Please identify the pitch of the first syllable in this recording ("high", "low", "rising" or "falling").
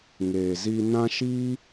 low